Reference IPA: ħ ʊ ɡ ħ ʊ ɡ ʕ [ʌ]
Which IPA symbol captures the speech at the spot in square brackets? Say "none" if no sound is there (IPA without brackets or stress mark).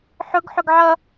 ʌ